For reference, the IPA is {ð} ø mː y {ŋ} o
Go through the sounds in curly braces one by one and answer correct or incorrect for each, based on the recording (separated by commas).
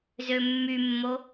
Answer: incorrect, incorrect